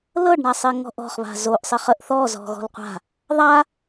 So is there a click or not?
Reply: no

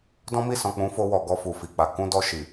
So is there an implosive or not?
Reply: no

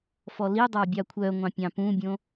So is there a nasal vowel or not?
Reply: yes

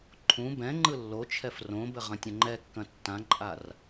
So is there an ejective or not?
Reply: yes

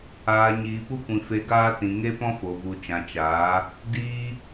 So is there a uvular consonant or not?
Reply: no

